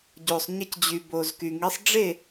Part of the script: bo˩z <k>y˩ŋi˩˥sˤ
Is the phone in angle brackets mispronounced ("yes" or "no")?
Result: no